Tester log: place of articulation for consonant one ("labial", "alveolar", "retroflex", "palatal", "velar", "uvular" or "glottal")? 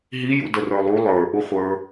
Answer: glottal